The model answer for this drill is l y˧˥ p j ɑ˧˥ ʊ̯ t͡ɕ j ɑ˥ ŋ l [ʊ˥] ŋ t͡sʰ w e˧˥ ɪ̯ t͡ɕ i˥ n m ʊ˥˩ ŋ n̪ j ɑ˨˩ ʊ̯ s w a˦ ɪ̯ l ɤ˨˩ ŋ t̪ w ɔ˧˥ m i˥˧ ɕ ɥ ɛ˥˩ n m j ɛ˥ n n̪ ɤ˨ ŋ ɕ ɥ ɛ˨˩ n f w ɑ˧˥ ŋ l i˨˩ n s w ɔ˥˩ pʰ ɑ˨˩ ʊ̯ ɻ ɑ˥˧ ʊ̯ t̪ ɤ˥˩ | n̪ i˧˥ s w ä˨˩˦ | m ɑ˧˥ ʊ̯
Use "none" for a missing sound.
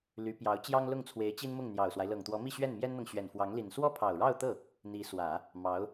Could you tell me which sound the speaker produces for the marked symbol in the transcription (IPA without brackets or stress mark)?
ʊ˥˩